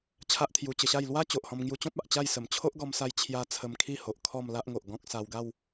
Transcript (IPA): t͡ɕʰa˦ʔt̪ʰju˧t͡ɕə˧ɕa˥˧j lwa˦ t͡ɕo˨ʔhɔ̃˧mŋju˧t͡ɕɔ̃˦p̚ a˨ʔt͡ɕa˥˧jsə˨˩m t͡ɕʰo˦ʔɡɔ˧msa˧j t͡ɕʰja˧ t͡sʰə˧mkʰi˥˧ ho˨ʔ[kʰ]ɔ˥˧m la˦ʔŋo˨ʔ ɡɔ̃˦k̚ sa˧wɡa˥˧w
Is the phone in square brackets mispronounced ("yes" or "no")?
no